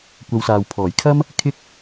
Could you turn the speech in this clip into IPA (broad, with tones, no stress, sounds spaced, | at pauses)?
kʷ ɐ˨˧ w s aː˨ w pʰ ɔː˨˩ j kʰ ɐ˥ m | kʰ ɪ˥ k̚